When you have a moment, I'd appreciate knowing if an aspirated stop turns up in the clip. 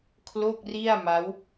yes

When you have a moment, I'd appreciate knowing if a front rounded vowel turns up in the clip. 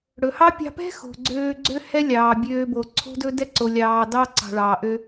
yes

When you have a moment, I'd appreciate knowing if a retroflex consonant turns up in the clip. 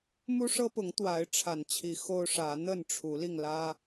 yes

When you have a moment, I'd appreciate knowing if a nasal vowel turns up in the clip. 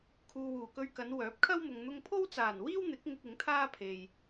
no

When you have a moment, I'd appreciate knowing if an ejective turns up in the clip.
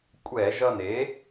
yes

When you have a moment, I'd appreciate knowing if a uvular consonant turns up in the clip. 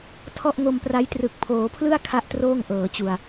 no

